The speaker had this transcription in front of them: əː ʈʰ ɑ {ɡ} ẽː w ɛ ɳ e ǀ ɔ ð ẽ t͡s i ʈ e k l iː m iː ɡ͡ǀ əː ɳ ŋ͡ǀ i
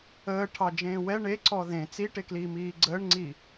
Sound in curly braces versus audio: incorrect: d͡ʒ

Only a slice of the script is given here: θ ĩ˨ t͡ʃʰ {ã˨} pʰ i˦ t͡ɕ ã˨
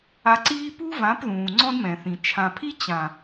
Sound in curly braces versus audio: correct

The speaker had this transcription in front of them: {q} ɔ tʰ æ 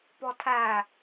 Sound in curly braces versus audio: incorrect: p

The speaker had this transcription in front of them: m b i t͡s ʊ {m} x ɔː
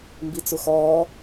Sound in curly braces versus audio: incorrect: none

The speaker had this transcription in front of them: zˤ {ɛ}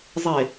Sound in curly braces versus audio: incorrect: e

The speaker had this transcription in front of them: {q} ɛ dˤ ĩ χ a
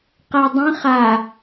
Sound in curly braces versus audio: correct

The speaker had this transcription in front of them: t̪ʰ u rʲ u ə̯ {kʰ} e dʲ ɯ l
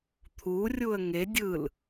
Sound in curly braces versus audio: incorrect: ŋ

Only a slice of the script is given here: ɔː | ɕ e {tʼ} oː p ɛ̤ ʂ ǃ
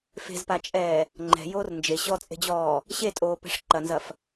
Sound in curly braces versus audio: correct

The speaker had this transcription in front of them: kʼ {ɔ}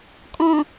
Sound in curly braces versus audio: incorrect: ɔ̃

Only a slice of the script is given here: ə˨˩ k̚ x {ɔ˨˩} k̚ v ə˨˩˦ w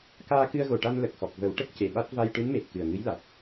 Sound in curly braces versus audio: correct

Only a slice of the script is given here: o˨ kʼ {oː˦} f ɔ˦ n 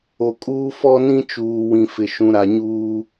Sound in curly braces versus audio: incorrect: uː˦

